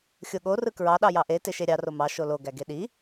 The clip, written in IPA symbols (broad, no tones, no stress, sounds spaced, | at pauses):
xʲ o ɠ o r ɯ k ɹ ɑ ɗ ɑ j ɑ ʔ e t e ʃ e ɾʲ ɑ r o m ɑ ʃ o l o ɡ æ ɡ e ɗ i